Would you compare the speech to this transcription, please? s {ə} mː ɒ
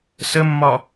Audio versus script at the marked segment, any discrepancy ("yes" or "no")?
no